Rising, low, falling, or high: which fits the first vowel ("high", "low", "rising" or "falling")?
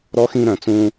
rising